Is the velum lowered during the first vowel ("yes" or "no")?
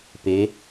no